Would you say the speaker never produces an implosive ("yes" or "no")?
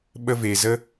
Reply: no